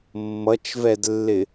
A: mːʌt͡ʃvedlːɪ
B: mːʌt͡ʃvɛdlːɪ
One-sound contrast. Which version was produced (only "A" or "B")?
B